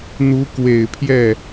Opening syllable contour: rising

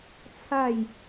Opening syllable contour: falling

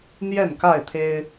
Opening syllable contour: falling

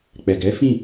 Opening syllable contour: low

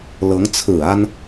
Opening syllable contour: rising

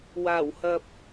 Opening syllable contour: low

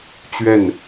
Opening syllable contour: falling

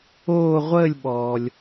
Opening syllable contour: falling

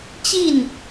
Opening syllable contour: falling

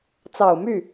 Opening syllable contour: low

